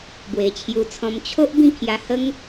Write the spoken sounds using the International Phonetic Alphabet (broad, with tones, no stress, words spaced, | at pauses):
bwe˨˩t͡ɕʰju˧t͡sʰɔ̃˧m t͡ɕʰo˦ʔ bĩ˥˧ kʰja˧hə˦ŋ